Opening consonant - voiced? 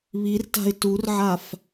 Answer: yes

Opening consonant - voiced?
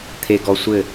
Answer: no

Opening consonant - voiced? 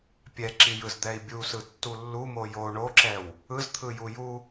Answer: no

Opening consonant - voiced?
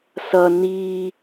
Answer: no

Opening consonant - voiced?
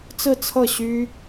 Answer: no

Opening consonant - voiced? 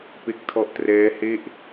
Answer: no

